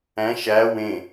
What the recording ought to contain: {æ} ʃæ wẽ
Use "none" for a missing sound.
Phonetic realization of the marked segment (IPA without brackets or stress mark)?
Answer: æ̃